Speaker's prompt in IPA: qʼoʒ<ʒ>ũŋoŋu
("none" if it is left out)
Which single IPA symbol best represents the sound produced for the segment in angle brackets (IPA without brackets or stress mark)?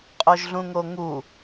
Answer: ɮ